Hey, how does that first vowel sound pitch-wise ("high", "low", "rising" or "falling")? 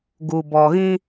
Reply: low